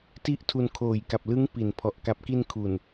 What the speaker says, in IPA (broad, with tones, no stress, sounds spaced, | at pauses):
t i˥˩ ʔ tʰ u˧ n kʰ oː˨˩ j k a˨˩ p̚ l ɯ˦˥ ŋ p i˩˦ n pʰ ɔ˨˩ ʔ k a˨˩ p̚ k i˧ n kʰ u˨˩ n